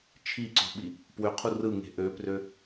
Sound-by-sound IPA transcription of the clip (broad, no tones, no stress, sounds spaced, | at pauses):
t͡ʃʰ i ǀ o̤ ɓ i | p w ø qʰ u r ɯ ŋ e̤ ʔ ø p r ø